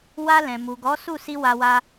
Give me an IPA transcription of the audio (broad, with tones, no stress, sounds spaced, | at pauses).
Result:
w a˧ l ɛ̃˨ m u˨ ɡ ɔ˨˦ s u˦˨ s i˧ w a˧ w a˧